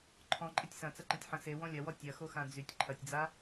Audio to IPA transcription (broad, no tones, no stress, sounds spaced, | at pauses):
ǃʰ ɔ̃ ǃʼ ɪ tʲ s ɐ̃ t͡s ɐ ǃ ɐ̃ tʲ ħ ɐ̃ s e w ɔ̃ lʲ ɐ w ɔ tʲ ɐ x o x ã d͡z y tʲ ǃʰ ɐ tʲ d͡z a